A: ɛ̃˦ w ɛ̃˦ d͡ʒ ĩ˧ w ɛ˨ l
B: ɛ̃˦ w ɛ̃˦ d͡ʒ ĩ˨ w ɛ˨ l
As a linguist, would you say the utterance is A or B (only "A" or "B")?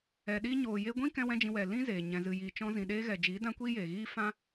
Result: A